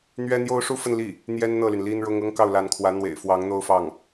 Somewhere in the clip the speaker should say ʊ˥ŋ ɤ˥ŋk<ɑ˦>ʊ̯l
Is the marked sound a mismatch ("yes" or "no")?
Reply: yes